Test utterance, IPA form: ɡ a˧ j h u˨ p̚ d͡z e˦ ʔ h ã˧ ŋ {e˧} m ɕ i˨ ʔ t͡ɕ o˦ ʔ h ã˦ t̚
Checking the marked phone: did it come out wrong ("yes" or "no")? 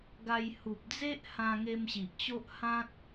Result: no